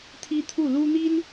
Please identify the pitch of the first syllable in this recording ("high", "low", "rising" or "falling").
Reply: high